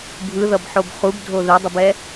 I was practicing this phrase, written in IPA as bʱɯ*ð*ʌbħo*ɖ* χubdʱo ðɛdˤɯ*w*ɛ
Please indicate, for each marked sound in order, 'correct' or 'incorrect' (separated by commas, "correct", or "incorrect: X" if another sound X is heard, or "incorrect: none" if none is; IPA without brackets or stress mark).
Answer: correct, incorrect: b, incorrect: b